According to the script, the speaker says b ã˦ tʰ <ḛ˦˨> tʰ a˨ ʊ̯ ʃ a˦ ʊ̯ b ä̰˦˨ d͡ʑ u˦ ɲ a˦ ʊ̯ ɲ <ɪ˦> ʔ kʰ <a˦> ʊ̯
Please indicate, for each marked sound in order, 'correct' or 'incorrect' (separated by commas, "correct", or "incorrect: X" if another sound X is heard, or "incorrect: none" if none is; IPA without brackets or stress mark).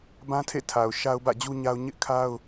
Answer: correct, correct, correct